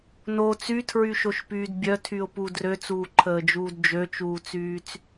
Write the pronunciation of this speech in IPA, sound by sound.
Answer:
no t͡sytʰɹyʃoʃpyːd bʲœtʰyʊ̯pu drøt͡suːǃʰəːd͡ʒuːd d͡ʒøt͡ʃuːt͡syːt͡s

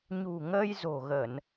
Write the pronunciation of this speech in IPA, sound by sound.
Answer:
ɲṳ˨˩ŋəː˧jzo̤˨˩ ɣə˧˩˨n

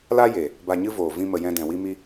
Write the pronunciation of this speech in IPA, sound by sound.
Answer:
la˦je˨ | ba˧ɲɨ˦voː˨ vĩ˧mə˨ jɛ̃˧dɛ̃˨wi˦mi˦

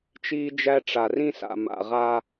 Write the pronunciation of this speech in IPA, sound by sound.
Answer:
t͡ʃiː˦d͡ʒæ˦ ʈ͡ʂa˨rĩ˦sa̰˨ ma̰˨ʁa˦

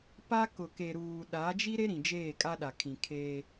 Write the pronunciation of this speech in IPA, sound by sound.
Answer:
pa˦ kʊ˨ke˨ɾuː˨ ɗa˨˦d͡ʒi˦ɾe˦ɾĩ˨ d͡ʒeː˦˨kʼa˦ɗa˨kʰĩ˨ kʰeː˦

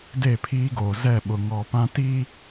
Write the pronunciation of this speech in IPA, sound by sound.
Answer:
de˦˨pʰiː˦ɡoː˨ zɛ˦˨ɓʊ˨ŋɔ˨ pã˦ti˦

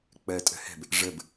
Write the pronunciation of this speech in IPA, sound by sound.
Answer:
k͡pɜtʼə̤hɛ̤b | ʐəb

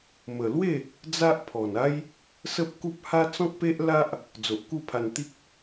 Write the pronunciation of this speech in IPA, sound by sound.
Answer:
mə˨˩lwe˥˧ | d͡za˦ʔpʰɔ˨˩na˦j | sə˦p̚ku˦p̚ha˦ t͡sɔ̃˦k̚pe˦ʔ la˦ʔ | d͡zo˨ʔku˥˧pʰa˧n t̪i˦k̚

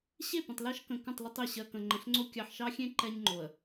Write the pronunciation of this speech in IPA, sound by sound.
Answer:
ɕe˦˨ pə̃˨tˤlɜ˦ʃ kə̃˨ kə̃˦˨tˤlə˦tˤe˨ ɕɜ˨kə̃˨ ŋ͡ǃə̃˨ɬŋ͡ǀo˦ kʲɑ˨ħʃɑ˦xʲẽ˦ ǃɛ˦ɲŋ͡ǃo˨ə̯

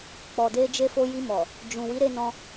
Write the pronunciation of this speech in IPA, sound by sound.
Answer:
k͡pɔ˨de˧d͡ʒe˧fo˧ ji˧mɔ˨ | d͡ʒũ˨ wi˨˦ɾe˧nɔ̃˧

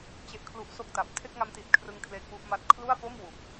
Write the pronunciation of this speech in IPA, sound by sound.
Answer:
t͡ɕe˦˥ʔkʰlu˦˥ʔso˥˩k̚ta˨˩p̚ tʰe˥˩k̚ŋa˦˥mti˨˩t̚kʰrɯ˧ŋ kʰle˦˥k̚wu˥˩ʔma˥˩t̚ kʰlu˥˩a̯po˥˩m wu˨˩k̚

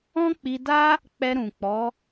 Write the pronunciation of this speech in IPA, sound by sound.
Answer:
ɔ̃˦k͡pi˧da˦ | k͡pɛ˧ɾũ˨k͡pɔ˨˦

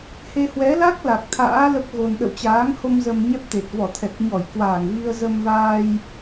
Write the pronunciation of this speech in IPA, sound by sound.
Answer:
he˧hwɛ˨˦la˦˥k̚ la˨˩k̚t̪ʰa̰ː˧˥ lə˦˥p̚ɣo˧n ɗə̰˧˨wt͡ɕaː˨˦ŋho˧m zə˧mɲɛ˦˥p̚t̪e˨˩t̚ vɔ˧˩t̪ʰɛ˨˩k̚ɲɔ˧˩j kwaː˧˩ŋvi˧ə̯ zə˧mvaː˧j

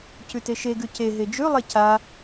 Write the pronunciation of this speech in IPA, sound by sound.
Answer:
cʉteʃe ɡʉce ɦed͡ʒʉlˠe ca

